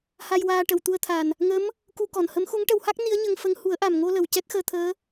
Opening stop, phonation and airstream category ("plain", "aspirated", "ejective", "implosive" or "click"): plain